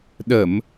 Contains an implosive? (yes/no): yes